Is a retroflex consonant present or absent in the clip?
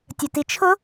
absent